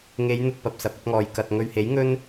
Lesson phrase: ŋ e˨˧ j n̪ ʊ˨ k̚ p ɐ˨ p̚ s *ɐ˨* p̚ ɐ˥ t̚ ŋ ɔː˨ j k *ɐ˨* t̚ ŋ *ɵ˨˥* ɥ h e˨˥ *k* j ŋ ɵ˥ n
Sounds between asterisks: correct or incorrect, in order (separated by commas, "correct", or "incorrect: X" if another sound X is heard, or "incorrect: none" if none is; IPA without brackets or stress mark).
correct, correct, incorrect: ɵ˨, incorrect: none